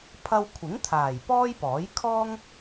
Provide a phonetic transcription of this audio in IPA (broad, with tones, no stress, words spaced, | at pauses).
pʰɐ˧wkʷʰɪ˨˥ŋt̪ʰaː˨˩j pɔː˥jpɔː˨˥j kʰɔː˥ŋ